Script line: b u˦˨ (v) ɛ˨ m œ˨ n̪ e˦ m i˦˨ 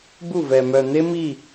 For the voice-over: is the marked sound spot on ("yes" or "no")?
yes